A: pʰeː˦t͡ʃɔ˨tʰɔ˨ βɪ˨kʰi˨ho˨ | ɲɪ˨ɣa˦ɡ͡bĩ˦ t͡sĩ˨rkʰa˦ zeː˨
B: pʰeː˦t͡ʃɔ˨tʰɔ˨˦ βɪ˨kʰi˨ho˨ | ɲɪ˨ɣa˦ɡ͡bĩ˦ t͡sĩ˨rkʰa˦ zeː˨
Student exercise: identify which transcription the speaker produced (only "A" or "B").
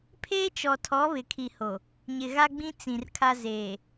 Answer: B